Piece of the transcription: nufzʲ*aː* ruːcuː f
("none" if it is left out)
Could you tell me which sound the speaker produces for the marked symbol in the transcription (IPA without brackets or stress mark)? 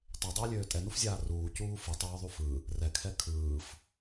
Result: aː